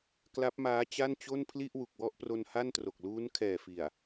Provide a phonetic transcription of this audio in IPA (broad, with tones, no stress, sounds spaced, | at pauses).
k l a˦˥ p̚ m aː˦˥ t͡ɕ a˥˩ n t͡ɕ o˥˩ n pʰ l i˥˩ ʔ w u˨˩ k̚ w ɔ˥˩ ʔ p r o˧ n h a˥˩ n t r o˨˩ k̚ l uː˦˥ n kʰ ɛː˨˩ f i˨˩ a̯